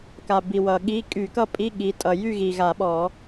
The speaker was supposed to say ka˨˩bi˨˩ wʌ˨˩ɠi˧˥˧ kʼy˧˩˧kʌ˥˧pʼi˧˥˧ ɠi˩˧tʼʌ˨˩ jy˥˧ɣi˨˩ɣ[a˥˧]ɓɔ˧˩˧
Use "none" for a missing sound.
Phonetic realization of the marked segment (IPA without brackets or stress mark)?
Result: a˧˩˧